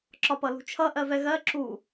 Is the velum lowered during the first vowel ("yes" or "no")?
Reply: no